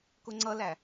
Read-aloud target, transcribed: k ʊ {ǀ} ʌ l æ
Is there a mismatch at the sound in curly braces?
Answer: yes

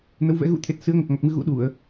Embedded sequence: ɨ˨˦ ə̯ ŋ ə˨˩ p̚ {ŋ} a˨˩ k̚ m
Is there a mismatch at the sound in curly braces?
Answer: no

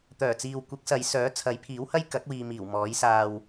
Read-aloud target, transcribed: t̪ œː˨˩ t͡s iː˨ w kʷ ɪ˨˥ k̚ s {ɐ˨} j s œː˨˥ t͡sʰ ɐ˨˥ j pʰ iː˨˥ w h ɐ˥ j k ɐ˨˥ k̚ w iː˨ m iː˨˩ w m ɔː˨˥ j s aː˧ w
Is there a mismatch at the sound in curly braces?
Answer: yes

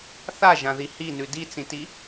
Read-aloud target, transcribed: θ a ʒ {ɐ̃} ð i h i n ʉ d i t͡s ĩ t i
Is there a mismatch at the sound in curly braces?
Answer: yes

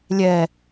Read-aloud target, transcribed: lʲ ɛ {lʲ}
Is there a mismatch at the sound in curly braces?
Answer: yes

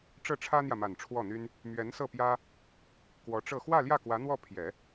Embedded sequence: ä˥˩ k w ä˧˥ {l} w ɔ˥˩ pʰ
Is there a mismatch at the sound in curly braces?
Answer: yes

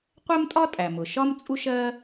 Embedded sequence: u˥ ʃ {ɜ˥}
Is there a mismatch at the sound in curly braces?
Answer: no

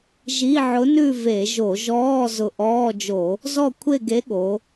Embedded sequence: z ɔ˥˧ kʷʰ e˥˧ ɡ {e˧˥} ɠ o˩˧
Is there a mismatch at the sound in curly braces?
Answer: no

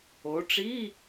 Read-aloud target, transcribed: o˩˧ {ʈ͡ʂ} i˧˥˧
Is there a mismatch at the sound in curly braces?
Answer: no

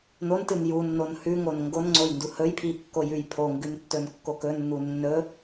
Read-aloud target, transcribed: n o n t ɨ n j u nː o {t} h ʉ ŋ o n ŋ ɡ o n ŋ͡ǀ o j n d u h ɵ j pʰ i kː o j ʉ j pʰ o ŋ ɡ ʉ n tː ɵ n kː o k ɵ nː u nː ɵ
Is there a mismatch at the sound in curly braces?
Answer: yes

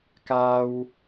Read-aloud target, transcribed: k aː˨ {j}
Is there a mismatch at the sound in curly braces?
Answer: yes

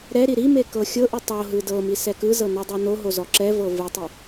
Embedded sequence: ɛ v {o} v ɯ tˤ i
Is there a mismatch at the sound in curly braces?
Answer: yes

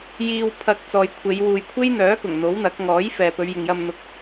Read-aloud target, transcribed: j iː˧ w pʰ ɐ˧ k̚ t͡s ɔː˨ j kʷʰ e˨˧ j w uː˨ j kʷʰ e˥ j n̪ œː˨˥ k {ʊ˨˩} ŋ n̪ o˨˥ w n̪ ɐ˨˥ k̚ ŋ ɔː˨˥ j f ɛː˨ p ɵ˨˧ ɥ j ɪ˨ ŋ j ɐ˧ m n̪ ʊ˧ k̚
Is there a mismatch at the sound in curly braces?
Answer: no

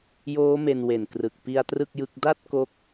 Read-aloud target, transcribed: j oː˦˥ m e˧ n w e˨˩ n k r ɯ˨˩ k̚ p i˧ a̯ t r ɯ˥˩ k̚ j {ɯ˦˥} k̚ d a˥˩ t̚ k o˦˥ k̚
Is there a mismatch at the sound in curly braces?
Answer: no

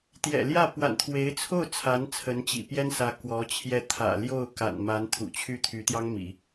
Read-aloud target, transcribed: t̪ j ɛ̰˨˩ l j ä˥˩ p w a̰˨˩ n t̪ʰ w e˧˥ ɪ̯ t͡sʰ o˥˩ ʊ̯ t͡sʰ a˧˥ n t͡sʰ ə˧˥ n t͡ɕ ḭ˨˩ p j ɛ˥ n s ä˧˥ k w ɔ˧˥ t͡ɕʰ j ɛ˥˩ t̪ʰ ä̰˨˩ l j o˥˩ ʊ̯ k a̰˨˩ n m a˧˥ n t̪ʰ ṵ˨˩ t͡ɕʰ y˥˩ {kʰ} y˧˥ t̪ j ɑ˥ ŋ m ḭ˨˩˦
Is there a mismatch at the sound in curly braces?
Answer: yes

